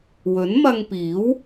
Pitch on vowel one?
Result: rising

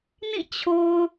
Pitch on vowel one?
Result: falling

